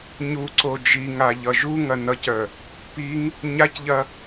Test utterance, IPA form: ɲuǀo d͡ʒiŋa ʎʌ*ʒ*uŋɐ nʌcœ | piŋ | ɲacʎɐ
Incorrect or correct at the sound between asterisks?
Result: correct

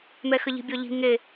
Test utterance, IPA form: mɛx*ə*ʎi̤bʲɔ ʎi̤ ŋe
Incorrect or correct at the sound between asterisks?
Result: correct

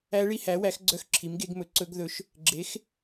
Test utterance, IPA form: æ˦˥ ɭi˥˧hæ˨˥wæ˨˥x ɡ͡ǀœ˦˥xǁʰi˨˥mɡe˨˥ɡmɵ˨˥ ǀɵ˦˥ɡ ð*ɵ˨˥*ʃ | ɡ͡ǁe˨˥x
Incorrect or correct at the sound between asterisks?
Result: correct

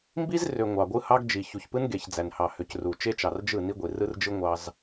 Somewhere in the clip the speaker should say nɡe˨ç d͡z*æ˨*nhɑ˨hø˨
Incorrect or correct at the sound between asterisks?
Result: correct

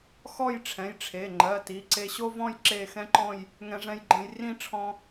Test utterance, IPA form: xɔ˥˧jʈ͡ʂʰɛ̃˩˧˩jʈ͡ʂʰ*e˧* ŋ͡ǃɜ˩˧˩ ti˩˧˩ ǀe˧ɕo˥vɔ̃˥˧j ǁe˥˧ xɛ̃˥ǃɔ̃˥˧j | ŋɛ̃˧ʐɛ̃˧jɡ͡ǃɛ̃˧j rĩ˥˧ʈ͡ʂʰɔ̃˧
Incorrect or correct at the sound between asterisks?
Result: incorrect: e˩˧˩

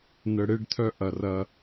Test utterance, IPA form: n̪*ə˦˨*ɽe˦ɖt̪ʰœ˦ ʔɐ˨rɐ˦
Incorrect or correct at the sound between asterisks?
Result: incorrect: ə˨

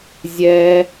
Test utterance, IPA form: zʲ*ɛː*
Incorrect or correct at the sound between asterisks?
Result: correct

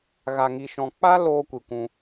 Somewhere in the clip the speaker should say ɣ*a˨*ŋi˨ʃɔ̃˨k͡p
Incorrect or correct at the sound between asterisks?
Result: correct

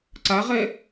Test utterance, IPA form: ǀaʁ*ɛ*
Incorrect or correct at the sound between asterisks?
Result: correct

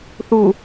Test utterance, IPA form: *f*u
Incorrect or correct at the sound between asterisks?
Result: incorrect: θ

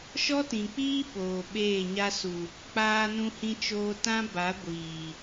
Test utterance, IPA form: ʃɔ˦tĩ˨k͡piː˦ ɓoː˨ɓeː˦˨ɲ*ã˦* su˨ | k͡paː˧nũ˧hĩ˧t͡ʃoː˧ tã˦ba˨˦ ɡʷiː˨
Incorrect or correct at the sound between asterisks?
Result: incorrect: a˦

